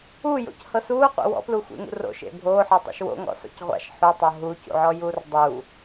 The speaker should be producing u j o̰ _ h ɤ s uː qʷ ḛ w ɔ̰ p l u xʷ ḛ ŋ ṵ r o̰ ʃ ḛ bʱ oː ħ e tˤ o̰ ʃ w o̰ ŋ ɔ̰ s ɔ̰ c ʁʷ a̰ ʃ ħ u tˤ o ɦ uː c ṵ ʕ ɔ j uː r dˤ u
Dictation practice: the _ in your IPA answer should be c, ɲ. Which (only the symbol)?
c